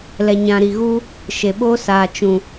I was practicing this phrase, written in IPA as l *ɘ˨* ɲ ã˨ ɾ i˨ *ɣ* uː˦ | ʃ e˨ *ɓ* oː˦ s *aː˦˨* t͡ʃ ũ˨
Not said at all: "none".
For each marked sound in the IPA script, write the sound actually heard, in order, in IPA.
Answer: ɛ˨, ɣ, ɓ, aː˨

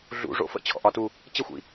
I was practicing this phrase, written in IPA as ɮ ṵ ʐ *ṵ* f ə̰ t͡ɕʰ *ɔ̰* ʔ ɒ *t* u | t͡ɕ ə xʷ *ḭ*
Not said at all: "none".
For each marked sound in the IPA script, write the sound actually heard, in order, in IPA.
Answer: o̰, ɔ̰, t, ḭ

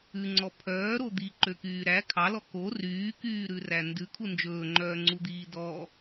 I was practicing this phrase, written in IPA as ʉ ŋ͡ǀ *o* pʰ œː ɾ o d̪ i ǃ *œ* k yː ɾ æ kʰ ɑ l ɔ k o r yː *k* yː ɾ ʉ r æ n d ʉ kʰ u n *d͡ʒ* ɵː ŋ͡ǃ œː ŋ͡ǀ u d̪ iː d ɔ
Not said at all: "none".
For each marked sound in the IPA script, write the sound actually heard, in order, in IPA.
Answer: ɔ, ø, k, d͡ʒ

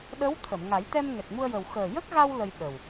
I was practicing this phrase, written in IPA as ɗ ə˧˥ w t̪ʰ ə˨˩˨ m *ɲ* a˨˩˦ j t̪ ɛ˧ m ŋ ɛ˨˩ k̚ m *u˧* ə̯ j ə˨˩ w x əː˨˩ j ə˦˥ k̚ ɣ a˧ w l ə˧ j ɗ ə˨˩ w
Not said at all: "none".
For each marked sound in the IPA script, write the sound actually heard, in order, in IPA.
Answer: ŋ, u˧

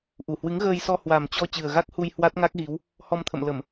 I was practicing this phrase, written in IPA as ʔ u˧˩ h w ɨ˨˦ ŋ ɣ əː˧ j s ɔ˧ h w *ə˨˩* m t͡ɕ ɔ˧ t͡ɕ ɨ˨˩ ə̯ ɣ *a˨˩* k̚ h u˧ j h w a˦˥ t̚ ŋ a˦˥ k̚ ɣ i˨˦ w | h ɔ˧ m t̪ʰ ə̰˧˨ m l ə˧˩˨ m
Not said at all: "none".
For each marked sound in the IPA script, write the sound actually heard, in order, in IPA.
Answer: a˨˩, a˦˥

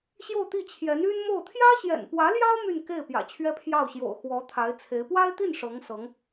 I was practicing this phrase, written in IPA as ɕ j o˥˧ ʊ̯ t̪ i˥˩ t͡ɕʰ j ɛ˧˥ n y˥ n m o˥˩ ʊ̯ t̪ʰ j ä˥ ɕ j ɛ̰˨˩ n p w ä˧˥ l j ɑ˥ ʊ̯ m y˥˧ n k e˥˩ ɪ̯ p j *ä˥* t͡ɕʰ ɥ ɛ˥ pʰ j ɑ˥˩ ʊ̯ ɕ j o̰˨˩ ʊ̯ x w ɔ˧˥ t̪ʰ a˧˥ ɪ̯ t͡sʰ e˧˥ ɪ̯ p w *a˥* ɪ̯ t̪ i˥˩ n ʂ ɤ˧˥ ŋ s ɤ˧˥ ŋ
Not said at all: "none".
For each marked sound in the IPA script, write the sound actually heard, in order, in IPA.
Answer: ä̰˨˩, a˥

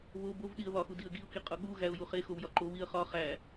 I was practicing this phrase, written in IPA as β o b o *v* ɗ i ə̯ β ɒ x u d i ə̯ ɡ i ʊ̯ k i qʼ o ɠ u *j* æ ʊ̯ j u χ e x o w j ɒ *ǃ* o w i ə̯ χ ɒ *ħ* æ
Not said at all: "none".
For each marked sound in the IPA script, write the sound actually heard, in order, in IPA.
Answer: v, ɣ, ǃ, χ

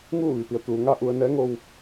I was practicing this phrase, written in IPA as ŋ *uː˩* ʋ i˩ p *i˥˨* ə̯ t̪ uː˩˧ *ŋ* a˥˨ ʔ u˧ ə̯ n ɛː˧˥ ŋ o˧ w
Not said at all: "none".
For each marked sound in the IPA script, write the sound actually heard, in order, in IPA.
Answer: uː˥˨, i˩˧, ŋ

